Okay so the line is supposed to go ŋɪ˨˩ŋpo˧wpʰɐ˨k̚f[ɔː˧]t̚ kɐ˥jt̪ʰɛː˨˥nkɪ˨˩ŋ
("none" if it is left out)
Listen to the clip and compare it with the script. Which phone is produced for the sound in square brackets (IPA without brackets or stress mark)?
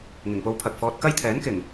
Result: ɔː˧